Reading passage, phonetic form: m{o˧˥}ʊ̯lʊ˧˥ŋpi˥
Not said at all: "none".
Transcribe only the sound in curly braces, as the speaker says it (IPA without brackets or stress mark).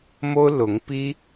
o˥